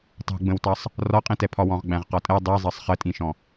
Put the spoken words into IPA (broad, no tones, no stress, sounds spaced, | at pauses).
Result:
tˤ ṳ ɡ͡b ə̃ w t ɑ sˤ | r ɒ qʼ ĩ t ɛ pʰ ɒ w ɔ̃ ʁ ɡ͡b æ̃ ʁ q ɒ tʼ ɛ dˤ i zˤ ɜ sˤ χ ə tʼ ĩ ʃ ɔ̃